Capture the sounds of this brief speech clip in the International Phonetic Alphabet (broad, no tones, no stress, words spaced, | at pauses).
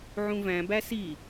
ʕũvæ̃bæ si